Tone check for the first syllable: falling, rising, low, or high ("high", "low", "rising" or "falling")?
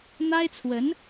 high